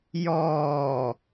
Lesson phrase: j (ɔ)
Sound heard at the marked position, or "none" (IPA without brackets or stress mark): ɔː